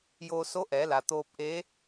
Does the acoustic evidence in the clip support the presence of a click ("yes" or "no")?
no